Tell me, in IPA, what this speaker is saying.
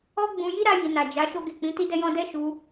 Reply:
ɔ˦ ɡ͡b ũ˧ j i˦ ɾ a˧ j i˨ n a˨ d͡ʒ a˨˦ ʃ o˦ ɡ e˦˨ k͡p ĩ˨˦ t i˦ d ɛ˦ j ɔ̃˦ d ɛ˦ ʃ u˧

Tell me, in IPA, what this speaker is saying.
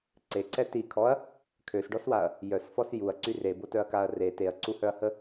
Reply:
ǀ e ǀ ɛ t i kʰ ɔ ɐ̯ | kʰ ø s ɖ ɔ s w a ɐ̯ | j œ s f ɔ s j u ɐ̯ ǀ y r e b o t œ ɐ̯ k a ɐ̯ r e t e ɐ̯ ǀ u h œ ɐ̯ h ə

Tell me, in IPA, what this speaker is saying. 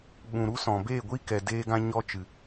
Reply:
ɓ ũ˨ ɾ u˦ s ɔ̃˨ b e˦˨ ɡʷ i˦ k ɛ˨ d eː˧ ɡ ã˧ ɲ ɔ˧ t͡ʃ ɨ˨

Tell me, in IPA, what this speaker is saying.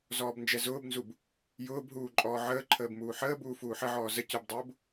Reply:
z ɔː b n d͡ʒ ɛ z ʊː b n z u b | j ʊː b ɦ uː ǃʼ ɔː ʕ əː ǃʰ əː b m uː ħ əː b uː f uː ħ ə ʕ ɔː z ə c ʊ b dˤ ʊː b

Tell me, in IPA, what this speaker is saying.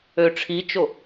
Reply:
ø ʈ͡ʂʰ i t͡ʃ o

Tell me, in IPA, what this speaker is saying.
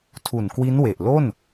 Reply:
tʰ u˨˩ n k w i˦˥ n w e˨˩ ʔ l o˥˩ n

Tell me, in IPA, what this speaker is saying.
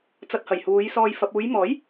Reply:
t͡s ɐ˧ t̚ h ɐ˨˩ j h uː˨˧ j s ɔː˧ j f ɐ˨ p̚ uː˨˧ j m ɔː˨˥ j

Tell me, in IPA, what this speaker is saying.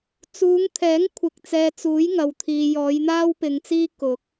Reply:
t͡s uː˨˧ ŋ t̪ʰ ɛː˨˥ ŋ kʷʰ ɪ˨ k̚ t͡s ɛː˨ t͡s uː˨˥ j ŋ ɐ˨ w t̪ʰ iː˨ j ɔː˨˧ j n̪ aː˥ w p ɪ˨ ŋ t͡s iː˥ k ʊ˨˥ k̚

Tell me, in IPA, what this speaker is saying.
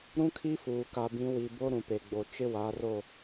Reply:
ɾ ũ˦ kʰ i˦ f uː˨ k a˨ b ĩ˨˦ w i˨ b o˦ ɾ ũ˨ p e˨ ɡ͡b o˨ t͡ʃ ɪ˦ w a˨˦ r o˦˨

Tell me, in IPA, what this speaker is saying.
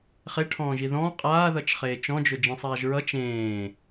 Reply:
χ e ʈʰ ɔ̃ː ʒ i ð ɔ̃ː qʼ aː ð ʌ t͡ʃ χ eː t͡ʃ ɔ̃ d͡ʒ ʊ d͡ʒ ĩ sˤ aː ʒ ɹ ʌ t͡ʃ ẽː

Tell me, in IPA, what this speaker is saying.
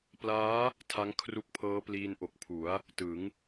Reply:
p l aː˦˥ | tʰ a˦˥ ŋ kʰ r u˦˥ k̚ pʰ ɤː˦˥ p l iː˧ n ʔ o˨˩ k̚ pʰ u˩˦ a̯ | t ɯ˩˦ ŋ

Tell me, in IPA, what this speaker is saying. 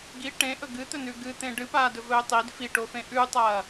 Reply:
ɡ i ʈ ẽ ʔ ɵ ɡ ɨ t̪ ɵ n ʉ ɡ ɨ t̪ ẽ ɖ ɨ p aː d ɵ v ɵː tˤ i d f i ʈ o f ẽ ʔ ʉ tˤ ɐː

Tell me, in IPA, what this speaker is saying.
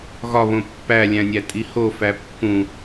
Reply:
ɣ ɒ β õ pː æ lʲ æ̃ nʲ æ tʼ i h o f æ pː ũ

